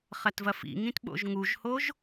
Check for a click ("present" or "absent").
absent